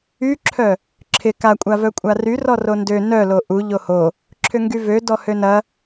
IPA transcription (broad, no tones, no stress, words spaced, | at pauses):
yǁʰœ | ǁʰɪ kakʷʼavœ kʷʼary rɔrondø nœlo ʔu ʎoho | ǁʰʏŋɡyvø dɔhønɐ